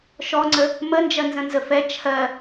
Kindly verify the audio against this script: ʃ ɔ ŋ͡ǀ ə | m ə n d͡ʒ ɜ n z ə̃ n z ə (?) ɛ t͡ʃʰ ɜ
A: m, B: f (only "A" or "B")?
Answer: B